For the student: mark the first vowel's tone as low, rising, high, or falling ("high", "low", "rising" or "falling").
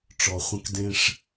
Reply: low